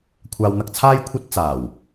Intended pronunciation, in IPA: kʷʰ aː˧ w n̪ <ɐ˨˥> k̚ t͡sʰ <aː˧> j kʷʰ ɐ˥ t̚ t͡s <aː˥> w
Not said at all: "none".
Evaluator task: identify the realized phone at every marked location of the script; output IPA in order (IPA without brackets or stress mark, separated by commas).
ɐ˧, aː˥, aː˨˩